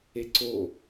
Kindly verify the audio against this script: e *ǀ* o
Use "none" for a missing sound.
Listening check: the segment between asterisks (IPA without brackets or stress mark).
ǀ